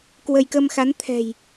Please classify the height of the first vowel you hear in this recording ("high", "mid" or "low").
mid